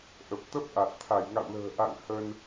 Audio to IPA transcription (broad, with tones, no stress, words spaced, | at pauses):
ʔə˨˩p̚ t̪ə˦˥p̚ʔa˨˩t̚ t̪ʰa˧˩jŋa̰˧˨wlə̤ː˨˩ ʔa̰˧˨ŋ hə˧n